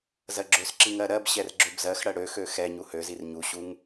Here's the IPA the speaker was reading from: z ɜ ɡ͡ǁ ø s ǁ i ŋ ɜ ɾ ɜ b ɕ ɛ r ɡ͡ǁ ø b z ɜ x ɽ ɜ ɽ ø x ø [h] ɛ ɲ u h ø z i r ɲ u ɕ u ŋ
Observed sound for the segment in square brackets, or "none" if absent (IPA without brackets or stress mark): x